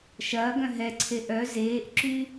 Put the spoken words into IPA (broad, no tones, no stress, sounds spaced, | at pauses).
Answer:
ʃ ɐː ɡ œ̃ ɦ ɛ ǀʰ e ʔ œ z eː ʔ ǁ y